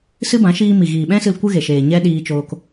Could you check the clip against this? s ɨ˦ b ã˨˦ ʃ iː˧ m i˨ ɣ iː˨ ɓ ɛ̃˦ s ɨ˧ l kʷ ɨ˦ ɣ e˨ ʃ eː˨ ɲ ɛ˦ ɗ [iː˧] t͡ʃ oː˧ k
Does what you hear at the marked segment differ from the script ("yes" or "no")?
no